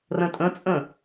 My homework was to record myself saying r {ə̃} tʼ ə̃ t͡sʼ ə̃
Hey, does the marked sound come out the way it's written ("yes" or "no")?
yes